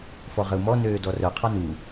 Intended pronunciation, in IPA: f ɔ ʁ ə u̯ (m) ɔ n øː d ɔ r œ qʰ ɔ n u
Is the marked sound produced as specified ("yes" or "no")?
yes